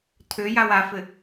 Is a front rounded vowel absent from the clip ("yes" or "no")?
no